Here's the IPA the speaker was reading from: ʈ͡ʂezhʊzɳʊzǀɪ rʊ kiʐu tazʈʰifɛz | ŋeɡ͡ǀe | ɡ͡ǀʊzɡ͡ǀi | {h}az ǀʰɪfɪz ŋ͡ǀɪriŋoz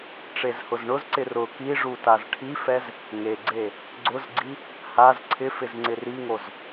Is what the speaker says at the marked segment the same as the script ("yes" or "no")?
yes